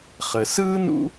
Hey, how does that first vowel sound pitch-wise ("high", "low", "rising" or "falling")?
low